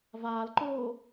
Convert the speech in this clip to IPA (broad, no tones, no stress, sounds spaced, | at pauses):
v aː l ǃ oː